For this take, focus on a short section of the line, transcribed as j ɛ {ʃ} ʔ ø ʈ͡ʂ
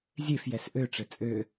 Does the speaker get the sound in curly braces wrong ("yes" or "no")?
yes